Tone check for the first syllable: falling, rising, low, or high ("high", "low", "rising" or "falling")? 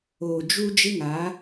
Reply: low